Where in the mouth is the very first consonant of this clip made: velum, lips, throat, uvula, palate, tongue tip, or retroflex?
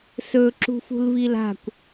tongue tip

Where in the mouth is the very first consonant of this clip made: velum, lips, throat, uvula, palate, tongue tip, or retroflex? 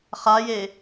uvula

